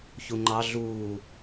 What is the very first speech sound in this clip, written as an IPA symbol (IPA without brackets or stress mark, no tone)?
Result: ç